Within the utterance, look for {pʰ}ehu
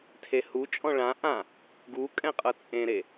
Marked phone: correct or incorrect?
incorrect: tʰ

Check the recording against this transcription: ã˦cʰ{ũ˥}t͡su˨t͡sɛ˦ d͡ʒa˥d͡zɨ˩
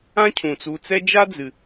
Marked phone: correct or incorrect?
incorrect: ũ˩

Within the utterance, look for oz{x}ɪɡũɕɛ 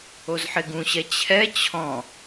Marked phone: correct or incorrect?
incorrect: ħ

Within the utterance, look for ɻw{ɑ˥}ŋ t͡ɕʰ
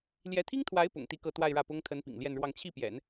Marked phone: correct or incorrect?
incorrect: ɑ˥˧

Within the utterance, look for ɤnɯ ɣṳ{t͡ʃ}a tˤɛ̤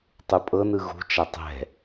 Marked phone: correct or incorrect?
correct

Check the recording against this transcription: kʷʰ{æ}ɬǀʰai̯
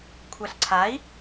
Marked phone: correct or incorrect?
incorrect: a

